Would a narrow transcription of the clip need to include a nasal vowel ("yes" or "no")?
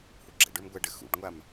no